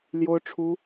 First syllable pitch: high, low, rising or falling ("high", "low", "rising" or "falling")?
high